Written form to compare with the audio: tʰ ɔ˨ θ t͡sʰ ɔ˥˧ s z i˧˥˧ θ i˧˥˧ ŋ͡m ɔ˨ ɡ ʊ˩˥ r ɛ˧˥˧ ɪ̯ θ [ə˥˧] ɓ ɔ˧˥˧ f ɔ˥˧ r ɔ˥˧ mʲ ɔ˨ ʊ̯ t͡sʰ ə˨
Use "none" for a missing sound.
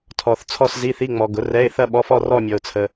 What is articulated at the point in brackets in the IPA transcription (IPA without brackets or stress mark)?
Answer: ɐ˥˧